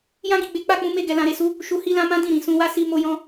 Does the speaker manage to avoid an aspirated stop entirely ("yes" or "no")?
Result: yes